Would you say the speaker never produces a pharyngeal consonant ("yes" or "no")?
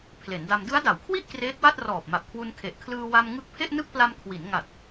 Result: yes